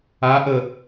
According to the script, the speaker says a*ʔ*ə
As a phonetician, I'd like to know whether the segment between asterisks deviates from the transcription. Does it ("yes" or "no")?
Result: no